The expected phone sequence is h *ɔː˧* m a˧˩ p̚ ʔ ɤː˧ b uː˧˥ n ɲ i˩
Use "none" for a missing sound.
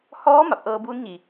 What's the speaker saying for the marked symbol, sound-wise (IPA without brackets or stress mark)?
ɔː˧˥